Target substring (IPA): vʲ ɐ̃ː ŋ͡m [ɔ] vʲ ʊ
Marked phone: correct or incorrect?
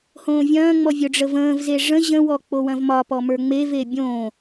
correct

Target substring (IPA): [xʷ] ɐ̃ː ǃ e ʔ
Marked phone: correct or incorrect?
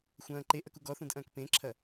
correct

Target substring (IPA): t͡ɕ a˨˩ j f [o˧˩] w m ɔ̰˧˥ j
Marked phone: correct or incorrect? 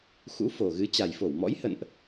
correct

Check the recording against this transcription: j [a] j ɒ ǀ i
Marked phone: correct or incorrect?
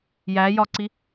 incorrect: æ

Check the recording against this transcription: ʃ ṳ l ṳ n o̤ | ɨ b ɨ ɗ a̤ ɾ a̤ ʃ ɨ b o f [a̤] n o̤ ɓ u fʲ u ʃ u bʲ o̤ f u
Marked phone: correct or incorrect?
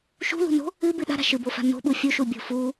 correct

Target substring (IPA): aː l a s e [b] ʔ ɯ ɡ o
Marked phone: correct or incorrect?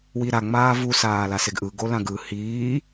incorrect: ɡ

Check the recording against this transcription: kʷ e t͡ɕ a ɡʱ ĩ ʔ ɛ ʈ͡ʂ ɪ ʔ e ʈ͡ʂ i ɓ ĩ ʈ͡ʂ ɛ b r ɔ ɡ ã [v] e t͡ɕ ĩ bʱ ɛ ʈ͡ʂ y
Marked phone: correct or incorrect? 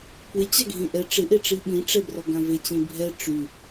correct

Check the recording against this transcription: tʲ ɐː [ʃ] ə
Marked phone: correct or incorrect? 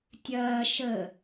correct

